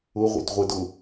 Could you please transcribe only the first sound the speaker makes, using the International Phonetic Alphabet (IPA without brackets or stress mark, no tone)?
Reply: ʊ